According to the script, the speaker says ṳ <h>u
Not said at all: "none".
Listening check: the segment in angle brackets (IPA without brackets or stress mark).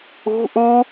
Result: ʔ